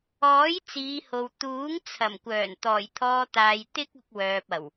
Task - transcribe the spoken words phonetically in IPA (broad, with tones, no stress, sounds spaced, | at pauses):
ɔː˨˥ j t͡s iː˨˧ h o˨ w t̪ uː˨˥ ŋ t͡sʰ ɐ˨˩ m kʷ œː˨˩ n t̪ ɔː˨˩ j t̪ʰ ɔː˧ t̪ aː˨ j t̪ ɪ˥ k̚ ʊ˧ k̚ w œː˨ p̚ ɐ˨˩ w